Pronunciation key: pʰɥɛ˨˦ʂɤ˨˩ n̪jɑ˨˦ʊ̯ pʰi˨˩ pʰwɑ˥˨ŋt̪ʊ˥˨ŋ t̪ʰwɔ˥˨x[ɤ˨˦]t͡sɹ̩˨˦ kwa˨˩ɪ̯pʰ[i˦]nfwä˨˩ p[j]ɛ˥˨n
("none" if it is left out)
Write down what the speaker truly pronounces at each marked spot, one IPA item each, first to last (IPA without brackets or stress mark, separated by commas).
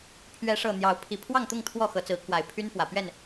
ɤ˨˦, y˦, ɥ